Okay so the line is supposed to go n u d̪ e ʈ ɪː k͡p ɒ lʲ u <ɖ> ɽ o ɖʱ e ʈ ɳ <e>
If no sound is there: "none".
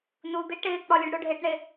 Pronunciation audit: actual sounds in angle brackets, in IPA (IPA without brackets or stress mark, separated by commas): ɖ, e